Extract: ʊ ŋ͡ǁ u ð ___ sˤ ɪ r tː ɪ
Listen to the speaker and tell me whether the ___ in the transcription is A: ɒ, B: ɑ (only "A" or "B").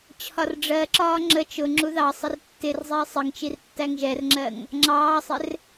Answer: B